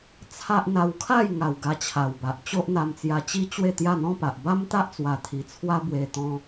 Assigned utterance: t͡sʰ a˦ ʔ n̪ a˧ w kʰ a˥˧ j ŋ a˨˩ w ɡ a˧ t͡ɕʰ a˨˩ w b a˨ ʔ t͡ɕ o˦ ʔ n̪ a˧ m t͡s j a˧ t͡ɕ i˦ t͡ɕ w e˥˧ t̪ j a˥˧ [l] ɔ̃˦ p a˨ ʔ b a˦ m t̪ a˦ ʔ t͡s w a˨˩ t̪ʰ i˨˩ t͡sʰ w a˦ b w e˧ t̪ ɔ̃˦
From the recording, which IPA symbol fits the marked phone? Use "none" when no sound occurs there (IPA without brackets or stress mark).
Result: n̪